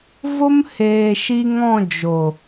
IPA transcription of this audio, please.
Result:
v o˦ m h eː˨ ʃ i˧ ŋ ɔ̃˦˨ d͡ʒ o˨

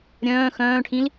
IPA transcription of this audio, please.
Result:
ɾʲ œ̃ː x œ̃ː ʈʰ ĩ l

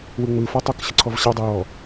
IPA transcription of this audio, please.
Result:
w ɯ ŋ͡m ɯ f ɔ tˤ o k ɕ ə ǀʰ ɔ v ɕ a dˤ ə j ɔ

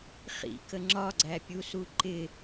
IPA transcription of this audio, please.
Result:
χ ḭ k ə ŋ͡ǁ ɒ ɡ͡ǀ æ pʲ u s u ǃ ɪ

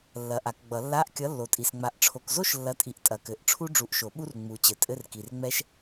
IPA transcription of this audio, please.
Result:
lː ɐ˨˥ ʔ a˨˩˦ k ɡ͡b ʌ˨˩˦ lː a˧˥˧ ʔ kʲ ʌ˨˥ lː o˨ tʼ i˨ s ŋ͡m a˨˥ ʔ ʈ͡ʂʰ o˨ k z o˥ ʃ lː ɐ˨˥ tʼ i˨˥ ʔ tʼ ɐ˨ k ɘ˨˩˦ ʔ ʈ͡ʂʰ u˥ ɖ͡ʐ u˨˥ ʔ ʃ o˨˩˦ ɓ u˥ r ŋ͡m u˨ t͡ɕ ɘ˨ tʼ ɘ˧˥˧ r k i˨ r ŋ͡m ɛ˥ ʃ

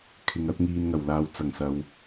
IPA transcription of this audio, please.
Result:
kʰ ɪ˨ ŋ ɐ˧ t̚ ŋ iː˨ n ŋ ɐ˨˩ w l aː˨ w t͡s ɐ˨˩ ŋ s ɐ˨ w

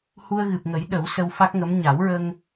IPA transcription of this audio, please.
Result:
h u˧ ə̯ ɣ ɨ˨˩ p̚ ŋ ə˨˩˦ j ɗ ə˨˩˦ w s ə˧ w f a˦˥ k̚ ŋ ə˧˥ m ɲ a˨˩˦ w ɹ ə˧ ŋ

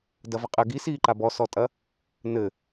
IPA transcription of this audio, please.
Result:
d ɐ v ɘ qʼ ɘ ɡ i s iː ǃ a b ɔ s ɔ tʼ ɐ | n ɘ

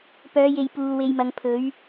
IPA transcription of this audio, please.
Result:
p œː˨˧ j e˨ j p uː˨ w e˧ j m ɐ˨˧ ŋ pʰ ɵ˨˥ ɥ

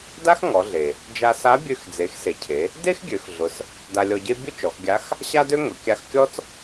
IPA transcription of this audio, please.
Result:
d a˥ x ŋ ɔ˩˧ ɮ e˩ | d͡ʒ a˧ s a˧˥ bʲ ø˧ x d͡z e˩˧ x s e˩ cʰ e˩˧ | d e˥ x ɡʲ ø˩˧ x ɮ ʊ˩˧ s | d a˧ lʲ ɔ˧ ɟ e˥ bʲ ʊ˥ t͡ʃ ɔ˩˧ x ɡʲ a˧˥ x | ɕ a˥ d ø˥ ŋ ʊ˩˧ kʲ a˧ x kʲ ɔ˥ t͡s

